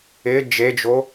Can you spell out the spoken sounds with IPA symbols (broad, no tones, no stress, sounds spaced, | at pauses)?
ɪ d͡ʒ e d͡ʒ o